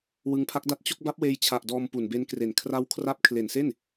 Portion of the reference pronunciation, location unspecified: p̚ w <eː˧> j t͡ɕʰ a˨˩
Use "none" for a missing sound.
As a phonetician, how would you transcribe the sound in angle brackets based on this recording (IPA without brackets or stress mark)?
eː˧